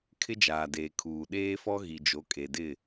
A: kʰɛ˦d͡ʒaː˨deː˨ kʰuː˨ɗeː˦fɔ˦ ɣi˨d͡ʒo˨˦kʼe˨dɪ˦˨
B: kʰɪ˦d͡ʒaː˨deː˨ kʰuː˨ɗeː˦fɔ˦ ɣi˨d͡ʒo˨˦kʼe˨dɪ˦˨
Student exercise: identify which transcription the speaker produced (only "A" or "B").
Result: B